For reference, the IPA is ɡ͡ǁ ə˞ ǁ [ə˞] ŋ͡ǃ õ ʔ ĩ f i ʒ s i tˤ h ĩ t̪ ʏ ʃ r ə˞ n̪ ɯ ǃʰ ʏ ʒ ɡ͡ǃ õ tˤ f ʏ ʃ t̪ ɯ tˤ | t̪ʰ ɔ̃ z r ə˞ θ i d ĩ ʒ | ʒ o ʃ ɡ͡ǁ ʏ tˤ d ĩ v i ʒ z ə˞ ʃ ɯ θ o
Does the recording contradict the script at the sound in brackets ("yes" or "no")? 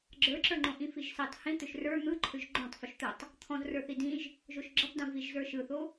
no